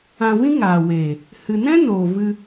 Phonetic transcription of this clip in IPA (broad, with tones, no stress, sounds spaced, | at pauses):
ã˧ v ĩ˦ ŋ aː˨ w eː˨ | h ɨ˨ n ɛ̃˦ n oː˨ v ɨ˧